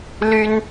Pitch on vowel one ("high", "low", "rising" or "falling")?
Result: high